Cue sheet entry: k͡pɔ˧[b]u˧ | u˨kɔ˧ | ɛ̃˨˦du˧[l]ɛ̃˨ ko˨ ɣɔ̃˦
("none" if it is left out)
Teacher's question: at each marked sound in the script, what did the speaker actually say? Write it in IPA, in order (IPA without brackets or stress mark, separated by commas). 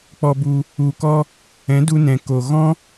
b, n